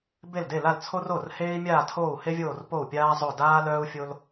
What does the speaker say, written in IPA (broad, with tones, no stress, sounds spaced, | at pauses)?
b e˥˩ l d e˥˩ l a˥˩ l t͡sʰ o˥ r o˥˩ r h eː˥ i̯ mʲ aː˥˩ tʰ oː˥˩ u̯ h e˥ vʲ oː˥˩ r p o˥˩ u̯ pʲ aː˥ zˤ o˥˩ d aː˥ l œː˥ u̯ fʲ o˥ l